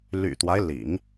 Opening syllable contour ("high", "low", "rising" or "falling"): low